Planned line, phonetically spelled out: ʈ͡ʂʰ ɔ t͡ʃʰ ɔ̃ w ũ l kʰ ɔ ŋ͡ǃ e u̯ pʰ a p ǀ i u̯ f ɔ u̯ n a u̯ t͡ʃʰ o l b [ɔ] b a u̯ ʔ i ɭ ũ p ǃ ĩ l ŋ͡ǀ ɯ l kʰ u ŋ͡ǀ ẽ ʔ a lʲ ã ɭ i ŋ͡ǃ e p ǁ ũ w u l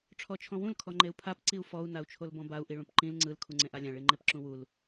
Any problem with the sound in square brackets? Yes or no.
yes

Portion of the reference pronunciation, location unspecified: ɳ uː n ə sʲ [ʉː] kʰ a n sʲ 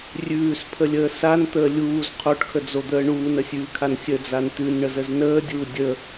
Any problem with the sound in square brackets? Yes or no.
no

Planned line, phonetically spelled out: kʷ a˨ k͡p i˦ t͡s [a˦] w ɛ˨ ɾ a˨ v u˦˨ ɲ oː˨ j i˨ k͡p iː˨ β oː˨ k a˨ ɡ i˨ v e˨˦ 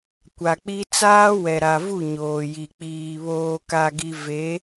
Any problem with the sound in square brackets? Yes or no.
yes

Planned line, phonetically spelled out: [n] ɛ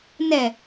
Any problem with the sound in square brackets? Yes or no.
no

